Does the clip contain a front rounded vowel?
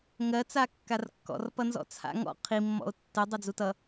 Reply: no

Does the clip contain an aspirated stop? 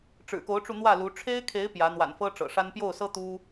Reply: yes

